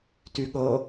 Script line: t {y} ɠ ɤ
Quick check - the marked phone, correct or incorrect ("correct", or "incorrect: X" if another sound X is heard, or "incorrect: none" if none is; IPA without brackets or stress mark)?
correct